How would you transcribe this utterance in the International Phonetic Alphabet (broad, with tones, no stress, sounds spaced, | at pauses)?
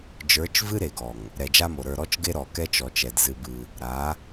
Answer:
d͡ʒ ə˞˨˦ t͡ʃ v ɨ˦ ɾ e˨ ɡ ɔ˨ ŋ | ɾ ɛ˨ d͡ʒ a˦ m o˨ ɾ ə˞˦˨ ɾ ɔ˦ t͡ʃ ɡ e˦ ɾ ɔ˨ k ɛ˦ t͡ʃ ɔ˨ t͡ʃ ɛ˨ d z ɨ˦ b ɨ˦ | ɾ a˨˦